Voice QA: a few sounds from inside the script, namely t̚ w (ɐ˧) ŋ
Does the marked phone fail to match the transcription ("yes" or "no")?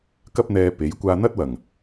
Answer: yes